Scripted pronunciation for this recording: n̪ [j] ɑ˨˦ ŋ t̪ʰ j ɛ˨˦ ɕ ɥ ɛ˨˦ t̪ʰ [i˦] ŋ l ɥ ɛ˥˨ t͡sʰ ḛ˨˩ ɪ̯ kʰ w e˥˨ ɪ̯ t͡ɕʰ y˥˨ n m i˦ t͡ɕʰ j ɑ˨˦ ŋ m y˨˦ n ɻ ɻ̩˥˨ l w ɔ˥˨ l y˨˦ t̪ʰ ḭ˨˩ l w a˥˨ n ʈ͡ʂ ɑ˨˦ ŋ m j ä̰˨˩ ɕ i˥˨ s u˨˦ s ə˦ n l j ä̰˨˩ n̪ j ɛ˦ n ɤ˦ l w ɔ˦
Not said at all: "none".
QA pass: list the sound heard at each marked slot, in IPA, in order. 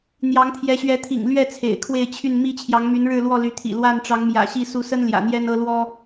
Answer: j, ḭ˨˩

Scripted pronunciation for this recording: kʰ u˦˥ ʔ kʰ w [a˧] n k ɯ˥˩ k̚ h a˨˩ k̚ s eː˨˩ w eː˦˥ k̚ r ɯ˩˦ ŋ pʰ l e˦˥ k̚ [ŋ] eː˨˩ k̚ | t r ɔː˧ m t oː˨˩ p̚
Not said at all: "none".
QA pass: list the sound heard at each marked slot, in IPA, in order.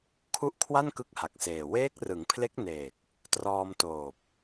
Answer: a˥˩, n

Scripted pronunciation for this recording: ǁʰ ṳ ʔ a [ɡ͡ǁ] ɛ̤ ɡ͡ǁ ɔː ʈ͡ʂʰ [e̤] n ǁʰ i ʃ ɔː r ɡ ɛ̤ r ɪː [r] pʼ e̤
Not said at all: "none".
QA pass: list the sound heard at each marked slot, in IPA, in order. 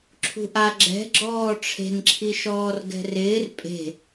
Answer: ɡ͡ǁ, e̤, r

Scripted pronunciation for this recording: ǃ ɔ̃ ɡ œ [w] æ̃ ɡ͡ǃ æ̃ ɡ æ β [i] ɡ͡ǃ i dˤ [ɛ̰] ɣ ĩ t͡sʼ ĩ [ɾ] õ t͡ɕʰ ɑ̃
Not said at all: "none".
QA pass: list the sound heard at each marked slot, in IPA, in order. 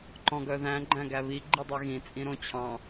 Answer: ð, i, ɛ, ɾ

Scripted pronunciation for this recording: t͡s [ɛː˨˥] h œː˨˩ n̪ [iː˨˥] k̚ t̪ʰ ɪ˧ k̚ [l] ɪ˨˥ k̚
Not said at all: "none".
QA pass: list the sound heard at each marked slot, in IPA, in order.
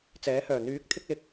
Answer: ɛː˨˥, yː˨˥, l

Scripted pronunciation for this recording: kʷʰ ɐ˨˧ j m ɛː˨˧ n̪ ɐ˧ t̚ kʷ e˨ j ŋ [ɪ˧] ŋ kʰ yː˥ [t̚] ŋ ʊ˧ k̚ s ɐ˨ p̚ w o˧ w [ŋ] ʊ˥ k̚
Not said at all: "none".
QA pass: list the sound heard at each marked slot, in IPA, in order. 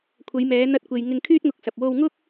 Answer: ɪ˧, t̚, ŋ

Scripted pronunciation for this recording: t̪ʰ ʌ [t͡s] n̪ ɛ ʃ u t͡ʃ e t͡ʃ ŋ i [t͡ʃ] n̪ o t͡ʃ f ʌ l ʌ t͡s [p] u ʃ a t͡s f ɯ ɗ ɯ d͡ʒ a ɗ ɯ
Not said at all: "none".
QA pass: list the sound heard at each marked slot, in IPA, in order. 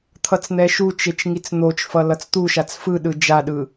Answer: t͡s, t͡s, t̪

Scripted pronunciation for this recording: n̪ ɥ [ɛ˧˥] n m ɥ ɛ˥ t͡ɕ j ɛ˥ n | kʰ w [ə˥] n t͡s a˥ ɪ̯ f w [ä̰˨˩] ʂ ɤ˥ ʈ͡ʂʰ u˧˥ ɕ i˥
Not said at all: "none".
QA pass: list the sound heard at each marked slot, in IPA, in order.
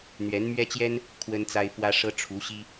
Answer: ɛ˧˥, ə˥, ä˥

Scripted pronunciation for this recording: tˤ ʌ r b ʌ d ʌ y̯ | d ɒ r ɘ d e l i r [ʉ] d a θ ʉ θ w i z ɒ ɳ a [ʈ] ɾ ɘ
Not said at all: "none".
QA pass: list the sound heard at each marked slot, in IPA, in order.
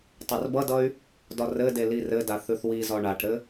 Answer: ɘ, ʈ

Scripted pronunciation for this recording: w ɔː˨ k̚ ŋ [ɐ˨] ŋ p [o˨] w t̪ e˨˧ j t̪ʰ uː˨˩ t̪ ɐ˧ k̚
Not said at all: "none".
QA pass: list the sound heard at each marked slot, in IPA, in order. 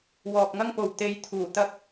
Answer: ɐ˥, o˨

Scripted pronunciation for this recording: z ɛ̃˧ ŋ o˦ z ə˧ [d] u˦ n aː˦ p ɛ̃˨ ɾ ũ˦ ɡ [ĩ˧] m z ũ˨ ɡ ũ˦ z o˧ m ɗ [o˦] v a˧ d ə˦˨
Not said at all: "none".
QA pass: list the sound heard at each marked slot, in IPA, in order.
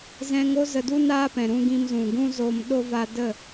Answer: d, ĩ˧, o˦

